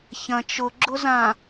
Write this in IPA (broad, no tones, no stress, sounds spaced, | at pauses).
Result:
ç ɐ̃ t͡ʃ ʊ ɡ͡ǁ ʊ z ã